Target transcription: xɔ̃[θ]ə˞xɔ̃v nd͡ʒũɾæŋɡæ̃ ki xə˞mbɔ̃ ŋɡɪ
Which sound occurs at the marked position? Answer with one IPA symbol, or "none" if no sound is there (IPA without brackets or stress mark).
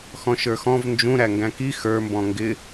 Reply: ʃ